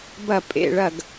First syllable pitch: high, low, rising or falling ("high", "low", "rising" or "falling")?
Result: falling